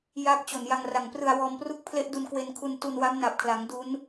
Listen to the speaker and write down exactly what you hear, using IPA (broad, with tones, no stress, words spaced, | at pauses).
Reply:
ja˦˥k̚ t͡ɕo˨˩nja˧ŋra˨˩ŋ prɯ˧a̯wɔː˧m pru˦˥k̚pʰle˦˥ʔdu˧n kwe˧nkʰu˧n tu˧nwa˦˥m na˨˩p̚kʰla˩˦ŋ du˦˥n